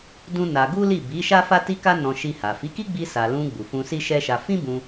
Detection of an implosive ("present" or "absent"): absent